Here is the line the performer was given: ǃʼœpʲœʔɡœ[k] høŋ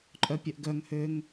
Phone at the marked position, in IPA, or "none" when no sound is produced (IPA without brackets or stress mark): ŋ